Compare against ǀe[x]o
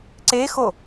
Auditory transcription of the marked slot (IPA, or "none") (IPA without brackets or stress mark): x